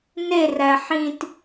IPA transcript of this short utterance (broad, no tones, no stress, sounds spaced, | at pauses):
n e r æ ħ ĩ t